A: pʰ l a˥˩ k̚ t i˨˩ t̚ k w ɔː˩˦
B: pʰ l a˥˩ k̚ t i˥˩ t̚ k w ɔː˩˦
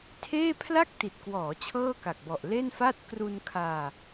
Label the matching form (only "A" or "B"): A